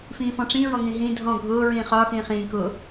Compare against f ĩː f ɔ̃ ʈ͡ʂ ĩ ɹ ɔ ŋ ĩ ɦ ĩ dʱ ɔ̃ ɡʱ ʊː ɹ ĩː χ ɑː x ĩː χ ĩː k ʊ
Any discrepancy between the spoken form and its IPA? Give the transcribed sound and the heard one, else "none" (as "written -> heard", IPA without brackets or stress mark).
ɑː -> ɒː